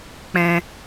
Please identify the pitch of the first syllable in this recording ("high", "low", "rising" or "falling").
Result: high